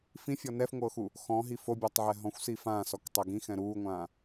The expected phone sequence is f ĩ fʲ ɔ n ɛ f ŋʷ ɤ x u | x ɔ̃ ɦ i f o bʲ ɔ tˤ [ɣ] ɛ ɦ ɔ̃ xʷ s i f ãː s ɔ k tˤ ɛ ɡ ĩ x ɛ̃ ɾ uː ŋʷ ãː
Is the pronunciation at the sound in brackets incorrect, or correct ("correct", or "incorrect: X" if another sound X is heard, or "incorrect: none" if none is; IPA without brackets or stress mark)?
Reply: incorrect: ʕ